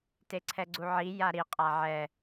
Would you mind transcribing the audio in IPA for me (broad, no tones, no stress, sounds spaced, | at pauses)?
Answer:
t e ǀʰ ɛ ɡ͡ǀ u ʕ i j a ɾ i qʼ a ʕ ɛ